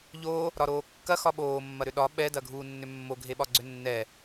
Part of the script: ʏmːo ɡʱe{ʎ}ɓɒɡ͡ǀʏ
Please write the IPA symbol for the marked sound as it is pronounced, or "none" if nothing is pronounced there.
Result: none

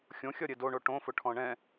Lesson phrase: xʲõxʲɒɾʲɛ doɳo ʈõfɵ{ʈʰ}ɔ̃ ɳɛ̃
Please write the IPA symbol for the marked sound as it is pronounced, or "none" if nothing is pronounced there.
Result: ʈʰ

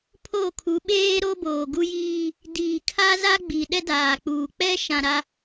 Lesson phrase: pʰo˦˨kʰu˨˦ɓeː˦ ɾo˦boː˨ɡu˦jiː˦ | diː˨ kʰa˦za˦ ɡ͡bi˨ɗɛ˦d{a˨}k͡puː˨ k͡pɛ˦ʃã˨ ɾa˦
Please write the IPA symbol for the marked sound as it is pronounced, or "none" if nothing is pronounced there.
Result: aː˨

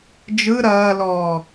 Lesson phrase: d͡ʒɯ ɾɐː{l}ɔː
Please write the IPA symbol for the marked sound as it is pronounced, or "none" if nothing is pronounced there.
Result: l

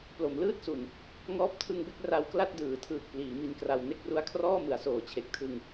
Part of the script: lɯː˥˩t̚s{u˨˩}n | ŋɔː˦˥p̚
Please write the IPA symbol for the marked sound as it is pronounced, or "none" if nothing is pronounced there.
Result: u˨˩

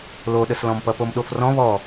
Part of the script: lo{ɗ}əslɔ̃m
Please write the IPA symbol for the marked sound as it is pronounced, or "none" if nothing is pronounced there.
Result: ɗ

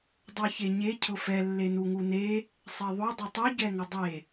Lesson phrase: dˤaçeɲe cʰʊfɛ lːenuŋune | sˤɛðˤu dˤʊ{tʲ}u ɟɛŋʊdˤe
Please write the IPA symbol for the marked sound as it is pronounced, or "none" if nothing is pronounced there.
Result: tˤ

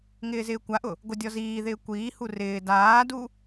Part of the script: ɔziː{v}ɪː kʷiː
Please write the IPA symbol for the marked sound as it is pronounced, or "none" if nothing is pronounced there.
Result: ð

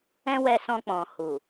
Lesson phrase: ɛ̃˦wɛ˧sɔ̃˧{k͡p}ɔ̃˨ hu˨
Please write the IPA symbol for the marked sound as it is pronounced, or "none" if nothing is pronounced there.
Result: k͡p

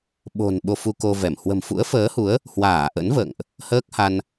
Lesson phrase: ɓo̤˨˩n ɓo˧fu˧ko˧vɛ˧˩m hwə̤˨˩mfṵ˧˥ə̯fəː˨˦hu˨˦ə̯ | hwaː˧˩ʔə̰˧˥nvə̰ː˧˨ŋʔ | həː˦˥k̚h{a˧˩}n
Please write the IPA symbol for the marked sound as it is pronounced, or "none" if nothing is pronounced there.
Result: a˧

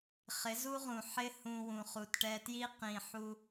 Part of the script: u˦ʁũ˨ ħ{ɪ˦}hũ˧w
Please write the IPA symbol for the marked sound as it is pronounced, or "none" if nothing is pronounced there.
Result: ɪ˦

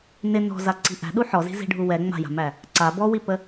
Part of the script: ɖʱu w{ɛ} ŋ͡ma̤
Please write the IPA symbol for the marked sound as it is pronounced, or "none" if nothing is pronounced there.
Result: ɛ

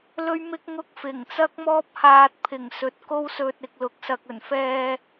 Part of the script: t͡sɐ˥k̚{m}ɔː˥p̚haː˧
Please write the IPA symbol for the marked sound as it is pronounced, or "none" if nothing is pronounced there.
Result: m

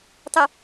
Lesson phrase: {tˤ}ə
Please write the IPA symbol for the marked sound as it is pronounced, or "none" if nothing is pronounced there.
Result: tˤ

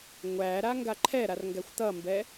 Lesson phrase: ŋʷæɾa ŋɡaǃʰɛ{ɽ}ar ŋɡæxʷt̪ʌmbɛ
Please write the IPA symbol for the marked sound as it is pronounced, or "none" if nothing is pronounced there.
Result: ɾ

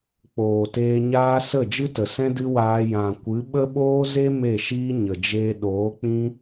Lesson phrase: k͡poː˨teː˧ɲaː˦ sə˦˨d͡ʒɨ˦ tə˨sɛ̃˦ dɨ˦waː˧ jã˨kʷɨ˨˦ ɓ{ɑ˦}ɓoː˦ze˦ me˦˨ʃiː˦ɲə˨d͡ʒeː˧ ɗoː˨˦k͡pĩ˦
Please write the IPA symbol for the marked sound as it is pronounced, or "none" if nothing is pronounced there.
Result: ə˦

